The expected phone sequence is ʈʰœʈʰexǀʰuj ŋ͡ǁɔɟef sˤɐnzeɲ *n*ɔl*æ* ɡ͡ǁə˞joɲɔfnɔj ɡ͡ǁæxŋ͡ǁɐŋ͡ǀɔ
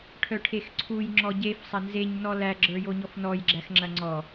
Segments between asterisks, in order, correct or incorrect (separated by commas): correct, correct